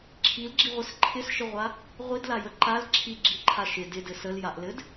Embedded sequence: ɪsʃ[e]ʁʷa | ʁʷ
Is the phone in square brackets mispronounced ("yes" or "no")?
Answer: yes